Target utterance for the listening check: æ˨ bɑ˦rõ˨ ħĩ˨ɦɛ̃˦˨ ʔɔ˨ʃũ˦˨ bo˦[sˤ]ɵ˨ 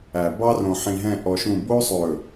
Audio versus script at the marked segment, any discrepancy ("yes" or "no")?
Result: no